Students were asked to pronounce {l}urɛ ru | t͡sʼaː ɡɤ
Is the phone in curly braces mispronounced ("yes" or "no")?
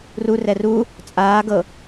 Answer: yes